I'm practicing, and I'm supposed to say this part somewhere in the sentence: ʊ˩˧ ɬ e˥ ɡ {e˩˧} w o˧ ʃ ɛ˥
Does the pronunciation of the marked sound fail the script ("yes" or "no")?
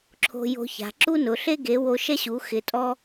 no